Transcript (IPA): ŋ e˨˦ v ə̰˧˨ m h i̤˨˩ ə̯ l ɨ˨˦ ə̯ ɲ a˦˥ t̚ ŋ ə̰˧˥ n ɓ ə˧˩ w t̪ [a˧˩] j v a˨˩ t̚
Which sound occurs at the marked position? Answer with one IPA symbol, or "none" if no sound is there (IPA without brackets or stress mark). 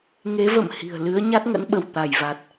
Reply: a˧˩